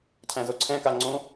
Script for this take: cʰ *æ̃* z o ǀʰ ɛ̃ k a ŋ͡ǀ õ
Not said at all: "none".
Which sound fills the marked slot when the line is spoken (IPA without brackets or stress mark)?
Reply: æ̃